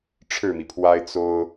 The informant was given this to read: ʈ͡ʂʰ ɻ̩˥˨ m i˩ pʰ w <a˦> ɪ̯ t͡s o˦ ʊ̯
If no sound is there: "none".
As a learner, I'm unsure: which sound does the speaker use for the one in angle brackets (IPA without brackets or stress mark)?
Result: a˦